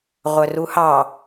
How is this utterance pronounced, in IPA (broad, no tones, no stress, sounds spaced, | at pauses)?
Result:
ʁʷ œ r u h ɑ